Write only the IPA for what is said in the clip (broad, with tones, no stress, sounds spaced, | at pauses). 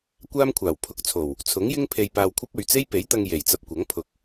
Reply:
kʷ aː˥ m kʷʰ aː˨˩ w pʰ ʊ˨˥ k̚ t͡sʰ o˨˩ w | t͡sʰ ʊ˨˥ ŋ j ɪ˥ ŋ pʰ e˧ j p aː˧ w kʷʰ ɐ˥ p̚ ɵ˨ ɥ t͡s e˥ j p e˨˥ j t̪ ɐ˧ ŋ j e˨˩ j t͡s ɐ˧ p̚ kʷ ɐ˨˥ ŋ pʰ ʊ˨˥ k̚